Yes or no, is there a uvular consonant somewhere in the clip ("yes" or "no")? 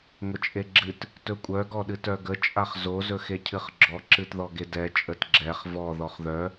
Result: yes